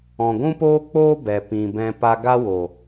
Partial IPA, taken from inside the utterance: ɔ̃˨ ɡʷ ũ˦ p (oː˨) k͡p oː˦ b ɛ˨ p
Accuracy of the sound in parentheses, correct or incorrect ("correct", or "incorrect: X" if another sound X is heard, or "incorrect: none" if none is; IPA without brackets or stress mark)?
incorrect: oː˦